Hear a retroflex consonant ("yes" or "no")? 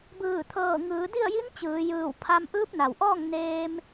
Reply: no